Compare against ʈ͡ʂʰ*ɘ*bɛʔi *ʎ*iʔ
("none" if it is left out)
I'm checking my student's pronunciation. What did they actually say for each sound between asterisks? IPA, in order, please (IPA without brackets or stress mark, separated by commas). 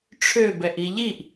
ø, ʎ